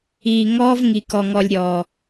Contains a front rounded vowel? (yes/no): no